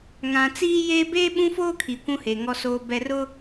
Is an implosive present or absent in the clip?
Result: present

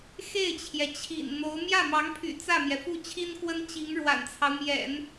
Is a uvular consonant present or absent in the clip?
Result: absent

